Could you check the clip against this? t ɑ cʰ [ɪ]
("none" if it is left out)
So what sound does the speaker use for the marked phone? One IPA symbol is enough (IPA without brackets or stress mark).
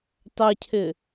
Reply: ɪ